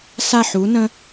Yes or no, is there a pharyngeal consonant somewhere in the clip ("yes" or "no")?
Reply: yes